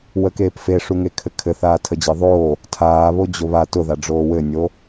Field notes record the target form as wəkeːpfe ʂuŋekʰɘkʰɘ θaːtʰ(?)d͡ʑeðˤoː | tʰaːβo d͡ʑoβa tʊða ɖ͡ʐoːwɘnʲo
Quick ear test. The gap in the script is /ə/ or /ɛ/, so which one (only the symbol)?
ə